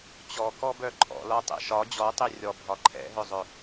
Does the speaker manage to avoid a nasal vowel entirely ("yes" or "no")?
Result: yes